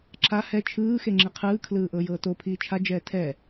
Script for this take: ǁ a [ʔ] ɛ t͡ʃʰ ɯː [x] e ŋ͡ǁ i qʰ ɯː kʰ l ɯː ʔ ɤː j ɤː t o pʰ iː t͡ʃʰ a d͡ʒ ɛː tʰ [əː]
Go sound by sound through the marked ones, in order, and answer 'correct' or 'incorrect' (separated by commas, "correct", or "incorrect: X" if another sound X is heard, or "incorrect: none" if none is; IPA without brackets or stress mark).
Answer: incorrect: h, correct, incorrect: ɛː